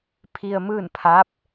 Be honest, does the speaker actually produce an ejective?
no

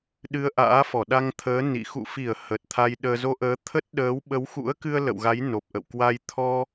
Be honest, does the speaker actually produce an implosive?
yes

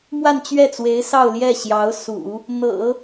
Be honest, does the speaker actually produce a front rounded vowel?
no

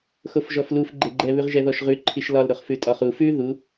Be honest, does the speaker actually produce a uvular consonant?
yes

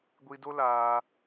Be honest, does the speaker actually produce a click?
no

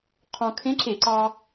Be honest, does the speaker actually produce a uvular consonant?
yes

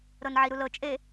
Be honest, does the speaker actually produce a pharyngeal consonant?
yes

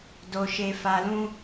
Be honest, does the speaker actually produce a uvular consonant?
no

